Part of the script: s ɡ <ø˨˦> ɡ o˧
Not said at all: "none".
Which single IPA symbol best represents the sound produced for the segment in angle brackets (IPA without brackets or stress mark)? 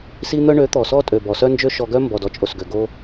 ø˨